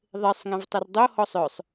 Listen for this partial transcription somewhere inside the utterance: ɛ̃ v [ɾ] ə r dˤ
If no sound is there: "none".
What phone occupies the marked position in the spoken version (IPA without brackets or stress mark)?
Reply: tˤ